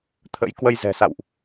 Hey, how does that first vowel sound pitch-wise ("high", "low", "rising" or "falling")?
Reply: rising